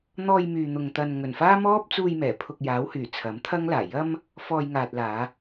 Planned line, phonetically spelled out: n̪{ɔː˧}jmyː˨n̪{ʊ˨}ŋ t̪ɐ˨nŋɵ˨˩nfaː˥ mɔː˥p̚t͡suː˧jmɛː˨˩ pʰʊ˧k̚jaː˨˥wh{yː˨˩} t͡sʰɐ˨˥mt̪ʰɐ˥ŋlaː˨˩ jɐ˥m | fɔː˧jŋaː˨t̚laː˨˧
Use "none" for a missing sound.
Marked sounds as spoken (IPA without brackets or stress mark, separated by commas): ɔː˧, ʊ˨, yː˨˩